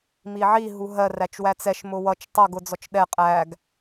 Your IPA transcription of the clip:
m i ʕ i ɦ u ɦ ɜ r æ t͡ʃ w æ t͡s ɛ ʃ m ʊ w ʌ t͡ʃ tˤ ʌ ɡ ʊ d͡z ɔ t͡ʃ ɗ ɛ qʼ æ ɡ

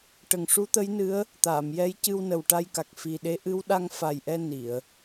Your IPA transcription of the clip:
ʈ ə˨˩ ŋ ʂ u˧˥ t̪ ə˧˥ j n ɨ˧˥ ə̯ | t̪ aː˨˩˨ m j ɛ˧˥ j c ɨ˧ w n ə˨˩ w ʈ a˧ j k a˨˩ k̚ f i˨˩ ɗ e˧˥ ʔ ɨ˧˥ w ɗ a˧ ŋ f a˨˩ j ʔ ɛ˧ n i˨˩˨ ə̯

